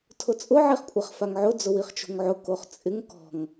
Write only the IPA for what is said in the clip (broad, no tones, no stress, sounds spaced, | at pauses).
tʰ ʊ t͡sʼ ʊ ʕ i χ kʷʼ a χ f a ŋ ʕ ʊ d͡z ʊ w i χ t͡ʃ o̤ ŋ ʕ ʊ k o χ t͡sʼ ɪ ŋ k ɔ̤ ŋ